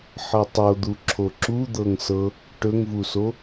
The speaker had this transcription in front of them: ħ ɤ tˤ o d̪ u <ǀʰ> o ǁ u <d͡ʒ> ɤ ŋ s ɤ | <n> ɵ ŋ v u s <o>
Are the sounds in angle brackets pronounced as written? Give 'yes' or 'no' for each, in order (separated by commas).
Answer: no, no, no, yes